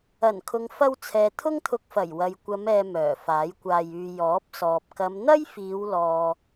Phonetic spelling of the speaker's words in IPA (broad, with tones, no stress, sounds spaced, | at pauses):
ɐ˨˩ n kʰ ʊ˨ ŋ f ɐ˧ w t͡sʰ ɛː˨ t̪ʰ ʊ˥ ŋ t̪ʰ ʊ˧ k̚ f ɐ˨˩ j w ɐ˨ j kʷ ɐ˨˧ m ɛː˨ m œː˨˩ f aː˨˥ j kʷ aː˧ j yː˧ j ɔː˨˥ p̚ s ɔː˨ p̚ k ɐ˨˧ m n̪ ɐ˥ j f iː˨˧ w l ɔː˨